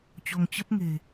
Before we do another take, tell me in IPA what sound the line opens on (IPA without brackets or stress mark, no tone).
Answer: t͡ɕ